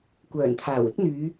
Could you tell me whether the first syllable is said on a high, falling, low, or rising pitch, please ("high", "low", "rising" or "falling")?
low